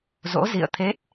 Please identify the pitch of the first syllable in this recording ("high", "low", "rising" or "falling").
rising